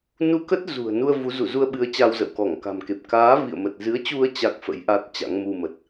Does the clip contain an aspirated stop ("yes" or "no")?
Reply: no